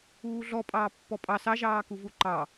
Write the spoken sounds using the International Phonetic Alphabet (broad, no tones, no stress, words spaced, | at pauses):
uːɮɔ pʼɑːpːɔpʼɑ sɑ ʒɑːkuvuǃɑ